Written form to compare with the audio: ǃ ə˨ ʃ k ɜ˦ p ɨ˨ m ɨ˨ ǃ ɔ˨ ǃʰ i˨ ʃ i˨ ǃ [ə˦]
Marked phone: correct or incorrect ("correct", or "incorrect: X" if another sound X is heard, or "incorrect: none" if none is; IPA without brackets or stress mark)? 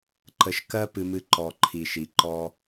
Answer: incorrect: ɔ˦